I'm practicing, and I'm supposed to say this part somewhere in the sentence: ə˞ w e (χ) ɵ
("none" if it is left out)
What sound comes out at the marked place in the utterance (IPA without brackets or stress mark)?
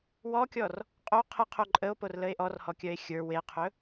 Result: qʰ